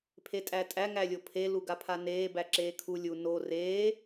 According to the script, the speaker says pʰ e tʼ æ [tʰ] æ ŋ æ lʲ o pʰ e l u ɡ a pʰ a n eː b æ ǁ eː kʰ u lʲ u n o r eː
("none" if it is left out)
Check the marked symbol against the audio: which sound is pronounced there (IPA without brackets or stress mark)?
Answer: tʼ